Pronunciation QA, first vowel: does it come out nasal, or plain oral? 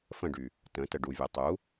nasal